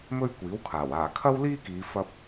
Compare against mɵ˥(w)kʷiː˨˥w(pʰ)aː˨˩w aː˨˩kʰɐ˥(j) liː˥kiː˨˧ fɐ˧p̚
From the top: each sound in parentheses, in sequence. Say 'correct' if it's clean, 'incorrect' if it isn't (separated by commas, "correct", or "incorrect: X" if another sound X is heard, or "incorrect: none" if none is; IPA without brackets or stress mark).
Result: incorrect: ɥ, incorrect: kʰ, incorrect: w